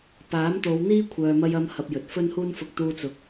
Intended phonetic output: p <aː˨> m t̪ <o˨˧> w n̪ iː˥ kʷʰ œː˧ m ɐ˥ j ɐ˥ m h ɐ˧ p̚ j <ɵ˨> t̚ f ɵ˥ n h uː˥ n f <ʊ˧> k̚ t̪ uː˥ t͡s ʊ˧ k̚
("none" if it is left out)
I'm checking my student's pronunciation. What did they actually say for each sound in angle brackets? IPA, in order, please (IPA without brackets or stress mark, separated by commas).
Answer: aː˨˥, o˨˧, ɵ˨, ʊ˧